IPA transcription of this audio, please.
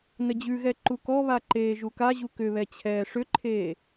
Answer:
n ə d͡ʑ ʉ ɣ ɛ ǃ u k ɔ β a ǃ eː ʒ u k a ʑ u k ʏ β ɛ t͡ɕʰ ɛː ʂ ʏ ǃʰ eː

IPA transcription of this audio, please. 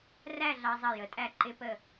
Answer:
r æ˥˧ ɮ ɑ˧ zˤ ʌ˧˩ j ə˩˧ tʼ æ˧˩ ǃ ɪ˧ p ə˧˩

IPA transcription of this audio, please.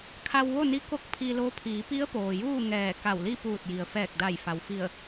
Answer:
kʰ a˧ w ʋ o˥˨ n i˧˥ k o˧˥ k̚ pʰ i˧ l o˧˥ pʰ iː˩˧ p i˧˥ ə̯ p oː˩ j uː˥˨ ŋ ɛː˧˩ k a˧˩ w l i˥˨ p uː˧˩ t̚ j i˩ ə̯ f ɛː˧˩ k̚ d a˧˩ j f a˩ w f i˧˩ ə̯

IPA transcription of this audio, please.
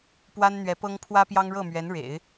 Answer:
p w a˥ n n̪ ɥ ɛ˧˥ p ɤ˥ ŋ pʰ w ä˥ p j ɑ˥ ŋ ɻ ɤ˥˩ m ɥ ɛ˧˥ n ɻ ḛ˨˩˦ ɪ̯

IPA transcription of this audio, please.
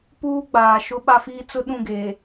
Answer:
p uː˦ ɡ͡b aː˨ ʃ ʊ˦ ɓ a˦ f iː˦ t͡s ʊ˦ ɗ ũ˦˨ ɡ eː˨

